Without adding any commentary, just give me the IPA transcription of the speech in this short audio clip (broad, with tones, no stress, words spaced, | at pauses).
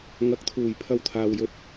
ŋɐ˨˥k̚t̪ʰuː˨˩j pʰɐ˧wt̪ʰaː˨wjɵ˨t̚